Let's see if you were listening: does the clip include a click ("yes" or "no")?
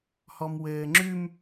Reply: yes